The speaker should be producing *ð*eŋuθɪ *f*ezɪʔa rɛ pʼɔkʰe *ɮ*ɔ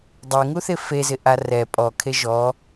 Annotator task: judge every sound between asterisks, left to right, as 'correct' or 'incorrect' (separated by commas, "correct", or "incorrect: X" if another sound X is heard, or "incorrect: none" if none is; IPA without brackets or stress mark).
incorrect: dˤ, correct, incorrect: ʒ